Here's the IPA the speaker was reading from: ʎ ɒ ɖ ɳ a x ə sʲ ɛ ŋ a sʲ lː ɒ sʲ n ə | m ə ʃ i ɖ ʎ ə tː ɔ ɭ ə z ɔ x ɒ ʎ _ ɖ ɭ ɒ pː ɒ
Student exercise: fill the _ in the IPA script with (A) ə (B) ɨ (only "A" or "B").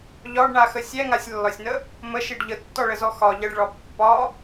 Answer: A